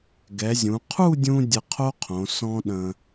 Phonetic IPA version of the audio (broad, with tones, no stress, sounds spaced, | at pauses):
ɡ ɛ˩˧ zʲ ũ˩˧ qʰ u˥˧ dʲ ũ˧ dʲ ə˧ qʰ o˥ qʰ õ˩˧ s ɔ̃˥ ɗ ə̃˧